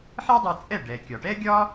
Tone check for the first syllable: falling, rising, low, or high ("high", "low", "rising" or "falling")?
high